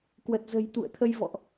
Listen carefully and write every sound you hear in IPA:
k w ə˨˩ t̚ z ə̤˨˩ j t̪ ṵ˧˨ ə̯ t̪ʰ ə˧ j v ɔ̰˧˨ ʔ

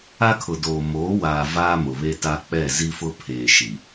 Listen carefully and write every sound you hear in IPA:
a˦ kʰ ʊ˨ d oː˨ m oː˨˦ w aː˨ v aː˦ m ʊ˨ β e˦ t a˦ k͡p ɛ˦˨ z i˦ f ʊ˦ pʰ eː˨ ʃ i˨

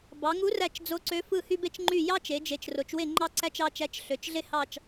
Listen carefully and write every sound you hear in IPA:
b ɑ˩˧ ŋ u˧˥ r æ˥˨ t͡ʃ d͡z o˧˥ ǀ ø˧˥ f ɯ˥˨ h y˥ b e˥ t͡ʃ ŋ͡ǃ y˥˨ j ɑ˥ t͡ʃ e˩˧ d͡ʒ e˩˧ t͡ʃ r o˩˧ t͡ʃ w e˥˨ ŋ͡ǃ ɑ˥ ǀ æ˥ t͡ʃ ɑ˧˥ t͡ʃ æ˧˥ t͡ʃ ɬ ø˩˧ t͡ʃ ɮ e˥ h ɑ˥˨ t͡ʃ

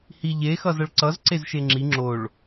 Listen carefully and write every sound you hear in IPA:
h i ʎ e x ʌ z ʌ ɭ ǀ ʌ z ǀ e z ʃ e ŋ͡ǁ i ŋ͡ǁ o ɭ

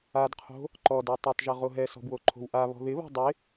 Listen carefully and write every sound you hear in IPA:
a d qʰ o̤ | ǃ ɔ d a tˤ o tˤ ʒ ʌ ʁ o ɦ ɛ s ɔ̤ b w o ǃʰ o̤ w ʔ a β ɔ̤ ð ɪ β ɔ̤ dˤ ɪ

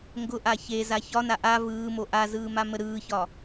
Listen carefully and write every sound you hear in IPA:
ŋ ɡ ʊ ʔ a ç e z a ç ɒ n a ʔ a v ɯː m o ʔ a z ɯː m a m ə ɾ ɯː ç ɒ

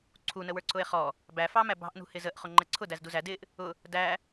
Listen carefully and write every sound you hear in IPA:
ǀʰ u n ə w ə˞ ǀ ʊ e̯ χ ɔ | b æ f ɑ m æ b ɑ̤ ʔ n ṳ h ɪ z ə ʔ χ ʊ ŋ͡ǃ ɛ ǀʰ ʊ d æ z d u z æ d ɪ ʔ | ʊ | d æ

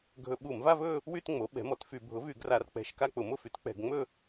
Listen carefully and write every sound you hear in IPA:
ɡʱ ɵ˧˩˧ ɓ u˧˩˧ m v a˥˧ v ɵ˥˧ | w y˥˧ t ŋ͡m o˩˥ ɓ ɛ̤˩˥ m ɔ˩˥ t f y˧˩˧ bʱ ʊ˩˥ v y˧˩˧ ɡ r a˧˩˧ r k͡p ɛ̤˧˩˧ ʃ k a˥˧ k͡p ʊ˧˩˧ m ʊ˥˧ f y˩˥ t k͡p ɛ̤˧˩˧ ɡ ŋ͡m ɵ˥˧

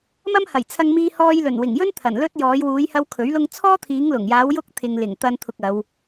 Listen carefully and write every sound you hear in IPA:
m ɐ˥ m h ɐ˨˩ j t͡sʰ ɐ˧ ŋ m iː˧ h ɔː˧ j l ɵ˨˩ n w ɪ˨˩ ŋ j ɵ˥ n t̪ʰ ɐ˨˩ n l ɵ˥ t̚ j ɔː˨˧ j w uː˨˧ j h ɐ˧ w kʰ ɵ˨˥ ɥ l ʊ˥ ŋ t͡sʰ ɔː˥ t̪ʰ iː˨˧ ŋ l ʊ˨˩ ŋ j aː˨˧ w j ʊ˥ k̚ t̪ʰ ɪ˨ ŋ l ɪ˨˩ ŋ t̪ ɐ˥ n t̪ʰ ʊ˧ k̚ ɐ˨˧ w

